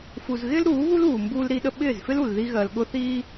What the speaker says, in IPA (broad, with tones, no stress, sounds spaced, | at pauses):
f u˨ z ɣ ɪː˦ l ɾ uː˨˦ β u˦ l uː˨ m b uː˦ l ɾ i˦ ɗ ə˦ ɓ ɪː˦˨ z f ɪ˦ l u˨ l ð i˦ ɣ ɜ˨ l ɠ ʊ˦ θ iː˦